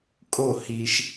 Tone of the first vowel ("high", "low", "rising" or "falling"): falling